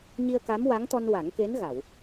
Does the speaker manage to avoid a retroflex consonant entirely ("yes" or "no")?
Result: yes